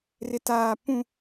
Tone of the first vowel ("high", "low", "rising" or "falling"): high